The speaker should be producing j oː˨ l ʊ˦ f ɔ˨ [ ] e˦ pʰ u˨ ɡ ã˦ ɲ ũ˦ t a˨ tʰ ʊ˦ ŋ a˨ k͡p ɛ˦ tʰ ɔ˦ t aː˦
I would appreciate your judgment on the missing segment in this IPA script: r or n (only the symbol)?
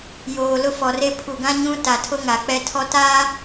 r